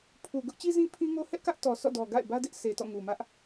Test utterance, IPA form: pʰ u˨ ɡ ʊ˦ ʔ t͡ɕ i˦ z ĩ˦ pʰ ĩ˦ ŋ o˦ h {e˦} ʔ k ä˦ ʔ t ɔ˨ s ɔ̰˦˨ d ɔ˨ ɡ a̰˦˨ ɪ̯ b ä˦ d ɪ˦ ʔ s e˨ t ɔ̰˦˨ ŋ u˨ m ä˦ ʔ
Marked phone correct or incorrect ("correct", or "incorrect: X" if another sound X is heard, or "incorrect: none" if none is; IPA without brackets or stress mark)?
incorrect: ɛ˦